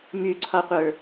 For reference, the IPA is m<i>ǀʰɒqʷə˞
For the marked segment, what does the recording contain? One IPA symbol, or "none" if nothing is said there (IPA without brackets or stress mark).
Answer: y